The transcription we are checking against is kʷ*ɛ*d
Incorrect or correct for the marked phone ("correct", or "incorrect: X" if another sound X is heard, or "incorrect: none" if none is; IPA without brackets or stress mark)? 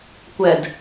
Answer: correct